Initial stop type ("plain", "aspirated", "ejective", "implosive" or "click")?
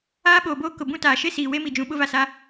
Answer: implosive